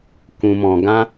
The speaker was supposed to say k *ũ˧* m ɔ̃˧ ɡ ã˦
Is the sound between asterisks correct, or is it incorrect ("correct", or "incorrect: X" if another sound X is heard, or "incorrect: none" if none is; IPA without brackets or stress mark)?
correct